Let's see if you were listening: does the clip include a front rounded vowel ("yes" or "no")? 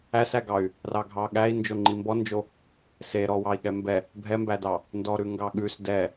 yes